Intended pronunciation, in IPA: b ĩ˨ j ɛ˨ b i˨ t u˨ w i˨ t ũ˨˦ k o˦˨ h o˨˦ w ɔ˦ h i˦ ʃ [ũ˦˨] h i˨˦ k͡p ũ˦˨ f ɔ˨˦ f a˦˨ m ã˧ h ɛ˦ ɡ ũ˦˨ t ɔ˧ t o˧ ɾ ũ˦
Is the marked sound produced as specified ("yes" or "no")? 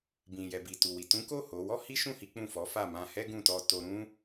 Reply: yes